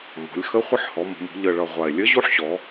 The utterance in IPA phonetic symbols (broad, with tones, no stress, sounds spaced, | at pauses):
m ɔ̤˩˧ lʲ x ə˧˥ χʷ ə˧˥ ħ h ɔ˩˧ m ə̤˩˧ m ṳ˩˧ ʎ ə˨˩ ɭ ʌ˨˩ ʁʷ a˨˩ e̯ lʲ ə˧˥ ʑ u˧˥ ħ ɕ ɔ˩˧